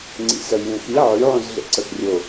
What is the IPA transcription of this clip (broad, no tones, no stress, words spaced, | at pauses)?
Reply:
ŋ͡ǀḭsəj lʲẽxi ʕyʕũz ɮḛǀəxrʲo